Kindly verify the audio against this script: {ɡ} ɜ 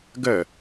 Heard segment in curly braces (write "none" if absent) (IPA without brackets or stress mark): ɡ